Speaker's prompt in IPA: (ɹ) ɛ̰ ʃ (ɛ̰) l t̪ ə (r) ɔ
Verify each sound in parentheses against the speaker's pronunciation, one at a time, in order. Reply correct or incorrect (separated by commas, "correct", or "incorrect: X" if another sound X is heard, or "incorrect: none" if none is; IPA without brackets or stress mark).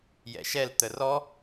incorrect: j, incorrect: ɛ, correct